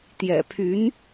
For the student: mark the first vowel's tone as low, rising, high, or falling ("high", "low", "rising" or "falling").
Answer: low